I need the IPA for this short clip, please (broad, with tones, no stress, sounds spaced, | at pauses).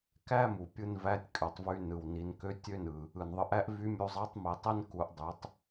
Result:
k æ˥ m u˩ pʲ ɯ˧ n v æ˧˥ tʲ kʼ ø˩ tˤ v y˧ n ɯ˩ w n i˩˧ n k ø˧˥ tʲ ø˥ n ɯ˩ | ɯ˩ n ðˤ ɯ˩˧ ʔ æ˥ ʔ v y˧˥ mʲ u˧ zˤ ɑ˧˥ tˤ m i˩˧ tˤ i˥ n k u˩˧ ʔ dˤ y˩˧ tˤ